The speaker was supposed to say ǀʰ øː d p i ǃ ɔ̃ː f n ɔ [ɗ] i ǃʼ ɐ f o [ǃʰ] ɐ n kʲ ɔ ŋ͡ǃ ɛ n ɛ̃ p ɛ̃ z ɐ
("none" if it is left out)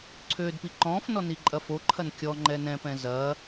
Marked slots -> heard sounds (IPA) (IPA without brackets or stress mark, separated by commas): n, ǃʰ